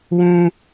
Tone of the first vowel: high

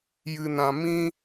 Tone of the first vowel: high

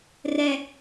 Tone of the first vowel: low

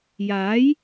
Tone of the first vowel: rising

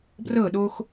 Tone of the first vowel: falling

